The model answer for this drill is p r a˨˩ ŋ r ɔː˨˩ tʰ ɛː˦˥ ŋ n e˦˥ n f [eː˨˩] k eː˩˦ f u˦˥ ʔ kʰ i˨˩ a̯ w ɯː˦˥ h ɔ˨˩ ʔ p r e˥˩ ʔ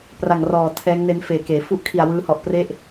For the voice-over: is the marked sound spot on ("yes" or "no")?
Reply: yes